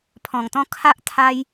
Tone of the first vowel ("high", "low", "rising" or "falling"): low